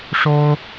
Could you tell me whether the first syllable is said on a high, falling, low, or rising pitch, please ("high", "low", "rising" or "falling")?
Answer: high